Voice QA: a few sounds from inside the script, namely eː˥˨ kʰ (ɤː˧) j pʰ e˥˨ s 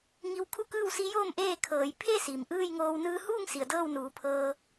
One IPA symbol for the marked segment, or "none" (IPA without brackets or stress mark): ɤː˩˧